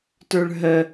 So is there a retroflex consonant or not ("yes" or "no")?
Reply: yes